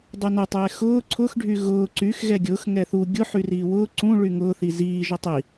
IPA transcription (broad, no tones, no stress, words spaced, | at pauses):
dˤunʊtˤɛː xʊː ǀʰʊxɖʱy ɣʊː ǀyx ɣɛɡʲʊːx ŋɛθu ɡʲʊ ħyriːwʊː ǀũ ɭyŋʊːθi ziːʒʊ tˤi